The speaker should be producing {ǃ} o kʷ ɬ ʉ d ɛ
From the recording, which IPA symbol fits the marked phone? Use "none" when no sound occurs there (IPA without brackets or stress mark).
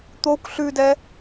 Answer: t̪